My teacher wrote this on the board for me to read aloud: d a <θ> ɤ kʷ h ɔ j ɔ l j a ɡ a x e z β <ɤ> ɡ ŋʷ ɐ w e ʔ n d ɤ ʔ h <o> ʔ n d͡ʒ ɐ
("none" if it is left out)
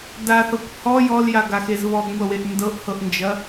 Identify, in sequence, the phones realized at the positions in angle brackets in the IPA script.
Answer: θ, ɔ, ɤ

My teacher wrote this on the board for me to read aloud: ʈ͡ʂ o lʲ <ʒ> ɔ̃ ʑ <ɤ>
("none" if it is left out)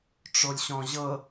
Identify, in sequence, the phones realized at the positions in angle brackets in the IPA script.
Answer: ɕ, ɤ

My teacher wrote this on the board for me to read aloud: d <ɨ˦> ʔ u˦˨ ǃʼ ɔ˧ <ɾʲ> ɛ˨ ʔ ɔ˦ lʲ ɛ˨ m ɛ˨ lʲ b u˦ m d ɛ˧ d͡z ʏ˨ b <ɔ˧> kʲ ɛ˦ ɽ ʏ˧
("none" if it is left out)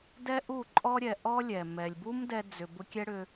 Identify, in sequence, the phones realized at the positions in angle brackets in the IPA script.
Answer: ɛ˦, ɾʲ, ʊ˧

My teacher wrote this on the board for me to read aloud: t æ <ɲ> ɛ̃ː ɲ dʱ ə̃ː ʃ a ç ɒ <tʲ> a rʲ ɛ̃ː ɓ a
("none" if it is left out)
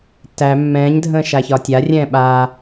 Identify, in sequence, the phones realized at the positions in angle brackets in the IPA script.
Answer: mː, tʲ

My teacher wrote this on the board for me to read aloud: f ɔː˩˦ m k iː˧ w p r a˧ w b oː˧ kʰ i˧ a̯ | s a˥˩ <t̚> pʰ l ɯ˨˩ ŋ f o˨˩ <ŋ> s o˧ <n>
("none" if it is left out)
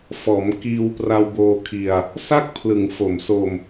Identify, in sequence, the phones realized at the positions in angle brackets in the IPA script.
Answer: k̚, m, m

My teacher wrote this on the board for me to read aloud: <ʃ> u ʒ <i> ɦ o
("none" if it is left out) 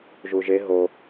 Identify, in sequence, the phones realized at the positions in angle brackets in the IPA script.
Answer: ʒ, e

